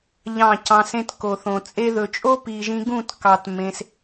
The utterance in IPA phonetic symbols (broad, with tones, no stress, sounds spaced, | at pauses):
ʎ ɑ̃˦˨ c ɑ̃˧ s ẽ˧ t k o˨ θ õ˨ t͡sʼ e˧ ð ɵ˨ t͡ʃʼ o˦ p i˨ ʒ ĩ˧ ɡ ũ˦˨ t k ɑ˨ t m ẽ˧ s